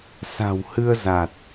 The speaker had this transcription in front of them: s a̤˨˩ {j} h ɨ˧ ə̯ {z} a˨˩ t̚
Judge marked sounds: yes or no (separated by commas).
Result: no, yes